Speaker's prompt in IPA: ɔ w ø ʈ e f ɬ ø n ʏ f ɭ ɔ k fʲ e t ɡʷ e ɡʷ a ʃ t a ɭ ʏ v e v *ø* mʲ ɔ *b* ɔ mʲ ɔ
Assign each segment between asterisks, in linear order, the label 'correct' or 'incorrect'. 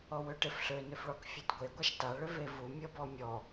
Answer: incorrect, correct

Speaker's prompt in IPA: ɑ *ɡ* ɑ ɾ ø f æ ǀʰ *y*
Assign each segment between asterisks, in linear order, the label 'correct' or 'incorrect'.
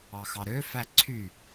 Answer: incorrect, correct

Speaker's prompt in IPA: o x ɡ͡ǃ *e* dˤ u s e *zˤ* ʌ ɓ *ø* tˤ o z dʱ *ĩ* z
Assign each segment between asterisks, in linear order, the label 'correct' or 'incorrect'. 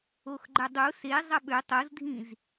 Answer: incorrect, correct, correct, correct

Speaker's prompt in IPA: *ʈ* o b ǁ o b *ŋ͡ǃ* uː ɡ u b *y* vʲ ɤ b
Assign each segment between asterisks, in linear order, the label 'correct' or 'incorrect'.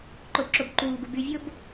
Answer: incorrect, incorrect, correct

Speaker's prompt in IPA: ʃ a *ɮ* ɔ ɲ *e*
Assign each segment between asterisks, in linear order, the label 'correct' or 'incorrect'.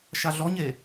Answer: correct, correct

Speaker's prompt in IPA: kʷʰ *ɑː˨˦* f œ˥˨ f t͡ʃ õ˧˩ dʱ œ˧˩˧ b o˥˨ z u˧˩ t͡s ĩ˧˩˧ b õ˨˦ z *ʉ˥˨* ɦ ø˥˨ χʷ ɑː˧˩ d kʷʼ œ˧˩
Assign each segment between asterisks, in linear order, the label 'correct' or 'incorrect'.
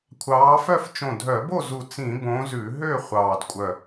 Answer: correct, incorrect

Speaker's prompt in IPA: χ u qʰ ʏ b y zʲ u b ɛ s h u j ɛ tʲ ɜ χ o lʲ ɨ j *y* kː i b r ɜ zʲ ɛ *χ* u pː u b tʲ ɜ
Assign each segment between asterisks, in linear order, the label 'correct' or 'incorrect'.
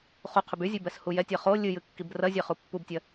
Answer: incorrect, correct

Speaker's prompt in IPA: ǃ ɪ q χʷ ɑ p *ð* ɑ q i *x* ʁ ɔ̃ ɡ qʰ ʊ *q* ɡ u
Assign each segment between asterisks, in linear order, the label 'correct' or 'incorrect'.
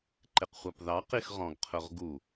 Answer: correct, correct, incorrect

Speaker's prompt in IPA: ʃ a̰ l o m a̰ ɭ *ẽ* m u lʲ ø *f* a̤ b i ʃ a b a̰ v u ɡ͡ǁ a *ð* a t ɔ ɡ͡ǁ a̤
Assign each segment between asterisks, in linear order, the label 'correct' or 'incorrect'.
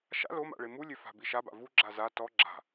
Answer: incorrect, correct, incorrect

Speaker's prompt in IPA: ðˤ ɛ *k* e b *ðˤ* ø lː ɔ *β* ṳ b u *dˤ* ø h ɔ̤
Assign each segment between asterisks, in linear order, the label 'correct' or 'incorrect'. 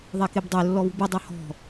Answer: correct, incorrect, correct, correct

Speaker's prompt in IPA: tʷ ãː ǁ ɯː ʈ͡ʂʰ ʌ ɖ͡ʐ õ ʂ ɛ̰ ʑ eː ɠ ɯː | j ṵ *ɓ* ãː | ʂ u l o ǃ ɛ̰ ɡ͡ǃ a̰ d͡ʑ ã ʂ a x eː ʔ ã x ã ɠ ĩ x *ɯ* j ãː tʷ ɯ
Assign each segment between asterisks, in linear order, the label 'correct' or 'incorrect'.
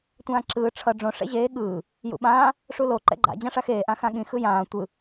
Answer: correct, correct

